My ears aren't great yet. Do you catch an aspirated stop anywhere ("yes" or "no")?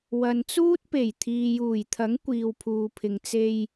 yes